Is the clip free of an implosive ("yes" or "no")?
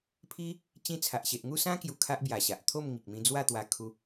yes